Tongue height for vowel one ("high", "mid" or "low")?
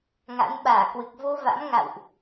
low